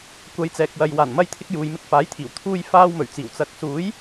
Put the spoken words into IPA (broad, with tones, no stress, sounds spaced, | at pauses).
kʷ ɐ˨˧ j t͡s ɛː˨ k̚ w ɐ˨ j w aː˨˩ n m ɐ˧ j t̪ʰ ɪ˧ k̚ j uː˨ j m ɪ˧ k̚ f aː˨˥ j t̪ʰ iː˨˩ w t̪ʰ uː˧ j f aː˧ w m ɵ˨˩ ɥ t͡s iː˨˩ w t͡s ɐ˨˥ k̚ s uː˨˥ j